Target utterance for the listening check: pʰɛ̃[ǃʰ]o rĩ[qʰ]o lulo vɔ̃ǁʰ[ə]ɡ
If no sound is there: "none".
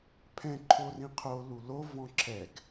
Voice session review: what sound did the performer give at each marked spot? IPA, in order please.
ǃʰ, qʰ, ɛ

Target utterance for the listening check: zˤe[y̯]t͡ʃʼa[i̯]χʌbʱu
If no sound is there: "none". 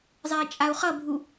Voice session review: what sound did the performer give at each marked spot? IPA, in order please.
i̯, u̯

